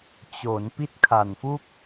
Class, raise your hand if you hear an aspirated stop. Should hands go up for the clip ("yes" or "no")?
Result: yes